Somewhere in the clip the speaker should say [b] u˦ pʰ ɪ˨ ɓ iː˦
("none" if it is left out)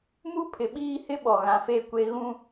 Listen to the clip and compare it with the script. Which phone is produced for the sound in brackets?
m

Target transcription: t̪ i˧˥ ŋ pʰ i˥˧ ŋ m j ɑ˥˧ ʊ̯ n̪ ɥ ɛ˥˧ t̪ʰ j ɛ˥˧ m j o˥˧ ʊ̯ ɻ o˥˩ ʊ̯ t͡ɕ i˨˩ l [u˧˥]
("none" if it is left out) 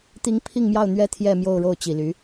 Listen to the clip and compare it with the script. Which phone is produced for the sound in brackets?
y˧˥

